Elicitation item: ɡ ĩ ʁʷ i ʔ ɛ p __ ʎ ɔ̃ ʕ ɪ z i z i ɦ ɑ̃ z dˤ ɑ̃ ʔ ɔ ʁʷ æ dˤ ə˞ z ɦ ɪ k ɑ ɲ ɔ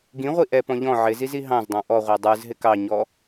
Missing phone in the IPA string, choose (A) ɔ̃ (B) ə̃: A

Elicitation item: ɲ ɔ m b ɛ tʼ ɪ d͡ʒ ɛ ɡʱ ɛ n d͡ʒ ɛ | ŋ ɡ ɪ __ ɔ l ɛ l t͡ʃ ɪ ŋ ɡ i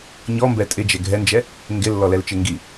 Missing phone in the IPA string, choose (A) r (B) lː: B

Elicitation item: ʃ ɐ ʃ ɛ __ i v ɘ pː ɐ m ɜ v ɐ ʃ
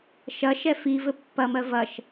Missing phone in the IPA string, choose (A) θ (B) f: B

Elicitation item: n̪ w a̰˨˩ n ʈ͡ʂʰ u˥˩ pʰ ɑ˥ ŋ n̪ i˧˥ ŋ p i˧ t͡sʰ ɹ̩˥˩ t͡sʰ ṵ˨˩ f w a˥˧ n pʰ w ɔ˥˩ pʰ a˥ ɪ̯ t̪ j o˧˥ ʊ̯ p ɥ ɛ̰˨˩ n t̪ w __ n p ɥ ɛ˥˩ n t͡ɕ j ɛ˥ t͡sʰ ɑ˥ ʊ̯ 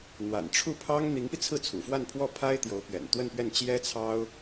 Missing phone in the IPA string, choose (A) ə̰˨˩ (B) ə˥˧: B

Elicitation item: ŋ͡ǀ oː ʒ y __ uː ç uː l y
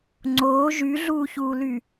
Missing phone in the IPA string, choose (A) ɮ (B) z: A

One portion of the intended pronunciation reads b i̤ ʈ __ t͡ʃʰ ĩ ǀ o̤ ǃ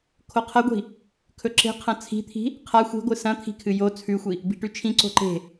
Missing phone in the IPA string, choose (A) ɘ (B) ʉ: B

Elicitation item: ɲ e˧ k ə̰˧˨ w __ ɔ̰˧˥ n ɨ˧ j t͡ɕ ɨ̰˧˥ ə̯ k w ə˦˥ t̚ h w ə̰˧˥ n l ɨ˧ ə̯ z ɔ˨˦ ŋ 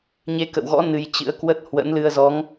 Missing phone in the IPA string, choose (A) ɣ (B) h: A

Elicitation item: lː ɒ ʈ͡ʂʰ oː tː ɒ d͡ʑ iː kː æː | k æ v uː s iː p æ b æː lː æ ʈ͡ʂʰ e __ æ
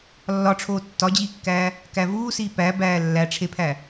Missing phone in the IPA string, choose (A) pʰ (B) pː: A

